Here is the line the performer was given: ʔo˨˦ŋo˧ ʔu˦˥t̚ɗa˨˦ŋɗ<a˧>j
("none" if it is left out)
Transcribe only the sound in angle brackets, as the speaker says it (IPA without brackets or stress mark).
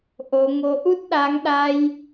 a˧